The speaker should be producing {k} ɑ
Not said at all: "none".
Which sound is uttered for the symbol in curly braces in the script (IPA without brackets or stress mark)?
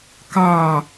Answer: k